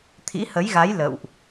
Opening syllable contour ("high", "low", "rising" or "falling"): rising